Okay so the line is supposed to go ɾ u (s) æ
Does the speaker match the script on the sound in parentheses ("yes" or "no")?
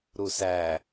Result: yes